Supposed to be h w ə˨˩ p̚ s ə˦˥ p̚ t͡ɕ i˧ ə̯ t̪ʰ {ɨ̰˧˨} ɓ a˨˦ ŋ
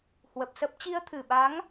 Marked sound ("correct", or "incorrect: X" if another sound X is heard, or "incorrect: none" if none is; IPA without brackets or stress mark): incorrect: ɨ˧˩